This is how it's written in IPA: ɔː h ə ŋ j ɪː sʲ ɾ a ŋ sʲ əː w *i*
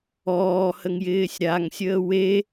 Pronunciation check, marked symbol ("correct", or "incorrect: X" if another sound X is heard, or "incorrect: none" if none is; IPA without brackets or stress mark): incorrect: e